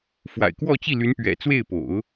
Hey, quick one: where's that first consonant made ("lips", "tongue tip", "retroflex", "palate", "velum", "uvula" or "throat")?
lips